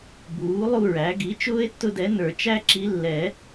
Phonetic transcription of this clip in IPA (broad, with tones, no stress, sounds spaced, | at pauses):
b uː˩˥ lˠ u˥˧ ɹ æ˩˥ ɡ i˩˥ t͡ʃ ʊː˥ e̯ tː ʊ˥˧ d ɛ˧˥ n ə˞˨˩˦ t͡ʃ æ˥ ǁ i˧˥ lː ɛ˨˩˦